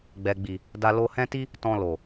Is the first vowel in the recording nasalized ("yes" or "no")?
no